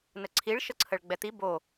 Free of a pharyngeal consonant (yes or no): yes